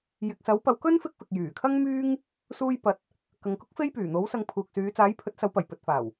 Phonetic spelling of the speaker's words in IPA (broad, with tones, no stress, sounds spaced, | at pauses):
j ɪ˨ k̚ s ɐ˨˥ w p ɐ˨˧ w k ɵ˥ n f ɪ˥ k̚ f ɪ˨ k̚ j yː˨˩ kʰ ɐ˥ ŋ m yː˥ ŋ | s uː˥ j p ɐ˧ t̚ | k ɐ˨ ŋ k ʊ˥ k̚ f e˥ j p yː˨˩ n̪ o˨˥ w s ɐ˧ ŋ pʰ uː˨ k̚ s yː˨˧ t͡s aː˨˥ j pʰ ɵ˨˥ t̚ s ɐ˨˧ w p ɐ˨˩ j p ɵ˨ t̚ f aː˨˩ w